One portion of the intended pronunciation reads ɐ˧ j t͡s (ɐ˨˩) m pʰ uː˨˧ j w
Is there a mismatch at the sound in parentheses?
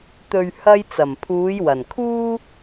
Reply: no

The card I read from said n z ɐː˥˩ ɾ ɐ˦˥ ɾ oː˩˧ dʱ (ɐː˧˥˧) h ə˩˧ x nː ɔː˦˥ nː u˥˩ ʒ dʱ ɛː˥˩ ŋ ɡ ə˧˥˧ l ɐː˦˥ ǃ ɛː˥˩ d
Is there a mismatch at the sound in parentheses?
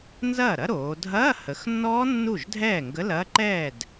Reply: no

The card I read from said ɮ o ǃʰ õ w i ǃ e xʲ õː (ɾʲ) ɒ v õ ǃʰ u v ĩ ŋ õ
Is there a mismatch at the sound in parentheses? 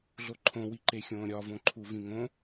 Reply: no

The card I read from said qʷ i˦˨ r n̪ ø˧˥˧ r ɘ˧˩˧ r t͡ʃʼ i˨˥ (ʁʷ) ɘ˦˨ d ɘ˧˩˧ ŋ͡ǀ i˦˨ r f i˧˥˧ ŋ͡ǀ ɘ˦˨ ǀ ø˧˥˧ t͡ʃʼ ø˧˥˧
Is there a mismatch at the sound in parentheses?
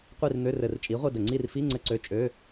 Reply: no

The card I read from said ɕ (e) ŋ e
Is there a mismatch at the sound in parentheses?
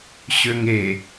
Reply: yes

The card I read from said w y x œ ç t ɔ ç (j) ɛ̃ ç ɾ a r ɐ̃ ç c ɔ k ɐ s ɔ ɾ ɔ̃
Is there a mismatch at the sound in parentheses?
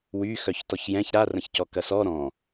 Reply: no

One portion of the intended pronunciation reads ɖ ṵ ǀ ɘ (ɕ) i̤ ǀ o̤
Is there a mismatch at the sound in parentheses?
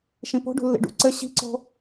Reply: no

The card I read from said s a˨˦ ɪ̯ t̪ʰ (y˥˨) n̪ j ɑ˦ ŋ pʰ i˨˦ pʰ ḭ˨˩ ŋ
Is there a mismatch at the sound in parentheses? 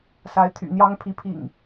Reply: yes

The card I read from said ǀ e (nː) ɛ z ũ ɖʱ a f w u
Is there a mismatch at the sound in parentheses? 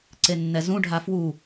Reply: no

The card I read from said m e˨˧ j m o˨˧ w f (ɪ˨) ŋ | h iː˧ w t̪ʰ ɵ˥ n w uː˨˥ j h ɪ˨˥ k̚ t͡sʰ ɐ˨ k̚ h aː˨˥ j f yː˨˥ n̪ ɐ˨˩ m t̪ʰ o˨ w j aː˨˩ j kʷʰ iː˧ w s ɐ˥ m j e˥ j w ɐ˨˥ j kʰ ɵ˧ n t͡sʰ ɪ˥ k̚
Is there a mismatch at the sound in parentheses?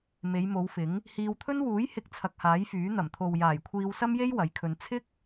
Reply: yes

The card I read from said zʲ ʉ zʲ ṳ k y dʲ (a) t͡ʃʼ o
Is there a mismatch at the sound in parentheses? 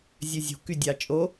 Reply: yes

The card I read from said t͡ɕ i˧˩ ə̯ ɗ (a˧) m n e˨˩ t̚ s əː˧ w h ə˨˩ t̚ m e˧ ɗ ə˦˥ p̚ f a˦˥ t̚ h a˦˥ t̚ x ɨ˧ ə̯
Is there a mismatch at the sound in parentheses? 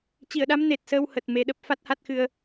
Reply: yes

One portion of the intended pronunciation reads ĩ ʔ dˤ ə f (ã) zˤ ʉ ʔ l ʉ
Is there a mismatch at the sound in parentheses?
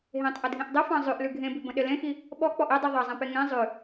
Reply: yes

